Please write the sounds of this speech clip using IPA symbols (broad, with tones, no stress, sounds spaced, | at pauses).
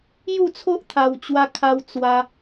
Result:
j u˥˧ t͡sʰ o˦ ʔ t̪ʰ a˧ w t͡ɕ w a˦ kʰ a˦ w t͡s w a˧